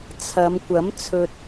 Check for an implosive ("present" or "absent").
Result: absent